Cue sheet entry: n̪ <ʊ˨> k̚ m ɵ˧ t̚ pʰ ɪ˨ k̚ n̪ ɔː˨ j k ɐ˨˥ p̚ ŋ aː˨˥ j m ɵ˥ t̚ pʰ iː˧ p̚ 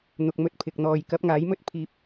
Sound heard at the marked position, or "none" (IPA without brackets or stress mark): ʊ˨